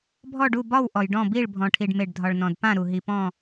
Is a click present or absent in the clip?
absent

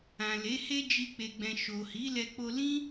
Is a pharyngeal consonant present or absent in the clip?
absent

